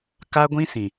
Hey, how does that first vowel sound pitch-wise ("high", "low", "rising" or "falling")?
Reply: high